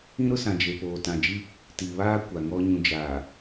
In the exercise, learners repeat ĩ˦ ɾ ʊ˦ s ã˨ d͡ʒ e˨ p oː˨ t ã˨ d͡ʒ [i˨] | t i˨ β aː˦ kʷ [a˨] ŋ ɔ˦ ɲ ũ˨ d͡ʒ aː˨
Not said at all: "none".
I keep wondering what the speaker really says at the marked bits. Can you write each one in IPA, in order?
i˦, a˨

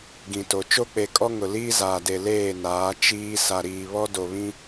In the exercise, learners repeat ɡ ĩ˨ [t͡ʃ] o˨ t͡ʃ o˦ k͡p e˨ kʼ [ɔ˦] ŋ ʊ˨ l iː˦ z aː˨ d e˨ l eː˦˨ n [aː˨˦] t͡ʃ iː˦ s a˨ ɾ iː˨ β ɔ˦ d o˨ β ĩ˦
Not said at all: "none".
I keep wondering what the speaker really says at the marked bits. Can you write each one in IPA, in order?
t, ɔ˦, aː˨˦

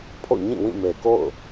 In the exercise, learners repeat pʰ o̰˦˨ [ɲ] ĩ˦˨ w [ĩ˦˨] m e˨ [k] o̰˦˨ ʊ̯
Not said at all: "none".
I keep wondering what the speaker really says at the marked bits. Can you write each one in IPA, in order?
ɲ, ĩ˦˨, k

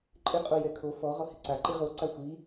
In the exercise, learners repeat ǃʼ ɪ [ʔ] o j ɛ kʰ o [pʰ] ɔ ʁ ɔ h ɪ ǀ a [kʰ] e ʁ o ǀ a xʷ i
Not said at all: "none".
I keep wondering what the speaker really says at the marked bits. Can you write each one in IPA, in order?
qʼ, f, ǃ

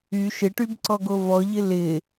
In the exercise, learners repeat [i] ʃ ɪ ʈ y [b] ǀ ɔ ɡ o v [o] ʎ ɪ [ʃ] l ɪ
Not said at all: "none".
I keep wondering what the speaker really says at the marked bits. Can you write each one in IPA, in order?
y, b, ɔ, none

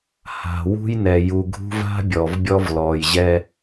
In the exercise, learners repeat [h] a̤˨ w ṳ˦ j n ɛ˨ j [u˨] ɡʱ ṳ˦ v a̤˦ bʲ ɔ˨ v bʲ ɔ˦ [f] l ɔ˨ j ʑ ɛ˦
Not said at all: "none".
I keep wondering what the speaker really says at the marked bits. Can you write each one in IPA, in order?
h, u˨, v

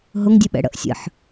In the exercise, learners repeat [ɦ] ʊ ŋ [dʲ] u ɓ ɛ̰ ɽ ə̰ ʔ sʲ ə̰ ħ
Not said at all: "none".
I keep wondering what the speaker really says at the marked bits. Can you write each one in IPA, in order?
ɦ, dʲ

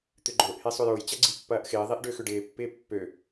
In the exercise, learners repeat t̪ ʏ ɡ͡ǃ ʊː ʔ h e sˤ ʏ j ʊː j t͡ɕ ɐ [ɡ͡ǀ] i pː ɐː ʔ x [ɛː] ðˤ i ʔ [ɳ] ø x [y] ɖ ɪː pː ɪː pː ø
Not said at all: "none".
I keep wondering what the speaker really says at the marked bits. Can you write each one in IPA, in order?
ɡ͡ǀ, ɪː, ɖ, ʏ

